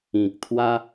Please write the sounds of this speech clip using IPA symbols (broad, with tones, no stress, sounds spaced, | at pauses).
ĩ˨ k̚ t̪ʰ w a˦